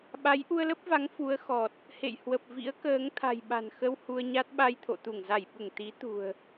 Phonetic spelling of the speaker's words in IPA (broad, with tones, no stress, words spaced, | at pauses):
ɓa˨˦j ʔu˧ə̯lə˦˥p̚va˨˦ŋ fu˨˦ə̯xɔ˨˩t̚ | hḛ˧˨jhwə˨˩p̚vḭ˧˥ə̯kəː˨˦ŋ t̪ʰa̤˨˩jɓa̤˨˩nxə˧w hu˧ə̯ɲa˦˥t̚ ɓa˧jt̪ʰo̰˧˨t̪u˧˩ŋ za˧˩jɓu˧˩ŋ t̪i˨˦ t̪ṳ˨˩ə̯